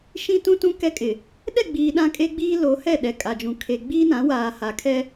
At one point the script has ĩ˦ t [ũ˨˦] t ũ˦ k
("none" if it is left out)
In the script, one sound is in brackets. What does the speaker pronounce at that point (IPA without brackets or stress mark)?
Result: ũ˦